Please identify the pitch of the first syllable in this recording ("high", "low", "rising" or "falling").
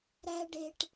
high